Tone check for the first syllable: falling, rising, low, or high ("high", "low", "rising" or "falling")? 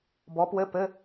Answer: rising